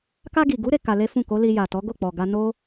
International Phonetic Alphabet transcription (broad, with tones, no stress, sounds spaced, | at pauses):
k a˧ ɡ i˨ ɡ u˨˦ ɾ e˧ k a˧ l e˦ f ũ˦˨ k o˨˦ l i˧ j a˨ t ɔ˨˦ ɡ o˦˨ k͡p ɔ˨ ɡ a˧ n o˦